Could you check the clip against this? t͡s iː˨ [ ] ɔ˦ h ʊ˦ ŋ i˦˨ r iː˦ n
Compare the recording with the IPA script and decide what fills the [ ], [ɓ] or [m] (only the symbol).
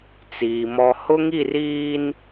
m